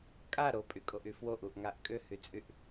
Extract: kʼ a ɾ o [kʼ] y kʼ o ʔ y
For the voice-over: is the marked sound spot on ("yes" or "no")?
no